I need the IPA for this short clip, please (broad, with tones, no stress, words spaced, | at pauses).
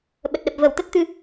ɓə˨˩t̚ɗə˨˩p̚ və˧˩wt̪ə˦˥t̚t̪ɨ˧